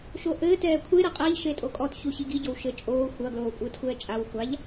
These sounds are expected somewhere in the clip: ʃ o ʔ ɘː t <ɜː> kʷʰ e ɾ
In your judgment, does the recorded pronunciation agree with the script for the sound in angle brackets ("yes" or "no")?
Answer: no